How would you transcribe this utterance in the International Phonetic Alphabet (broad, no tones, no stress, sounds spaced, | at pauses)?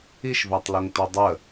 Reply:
i ʃ v æ tˤ l o ŋ t o dˤ ə